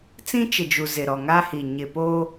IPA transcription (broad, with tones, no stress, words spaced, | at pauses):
t͡sĩ˦t͡ʃɪ˨d͡ʒu˨ zɪ˨ɾɔ˨ŋa˦hi˨ ɲɪ˨poː˦